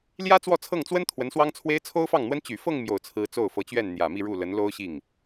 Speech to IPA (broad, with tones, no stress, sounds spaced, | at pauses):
l j ä˥ t͡s w ɔ˥˧ t͡sʰ ɤ˥˩ ŋ t͡s w ə˥ n t̪ʰ w ə˧˥ n s w ɑ˥ ŋ t͡sʰ w e˥ ɪ̯ t͡sʰ o˥ ʊ̯ f ɑ˥˩ ŋ n̪ w ə˥ n t͡ɕ y˨˩ f ɤ˥˧ ŋ m j o˥˩ ʊ̯ t͡sʰ ɹ̩˥ t͡s o˥˩ ʊ̯ f ɤ˧˥ t͡ɕ ɥ ɛ˥˩ n n̪ j ä˨˩ m i˥˧ ɻ u˥˩ l ə˧˥ n l o˥ ʊ̯ ɕ i˥˩ ŋ